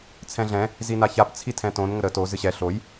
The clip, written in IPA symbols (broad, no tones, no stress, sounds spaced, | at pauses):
t͡sʰ ɛ̃ ɮ ɛ̃ | z i n a ç a p t͡sʰ i tʰ ɛ̃ t õ n ŋ ə ɾ ə t o z ɨ ɕ ɛ ɬ o j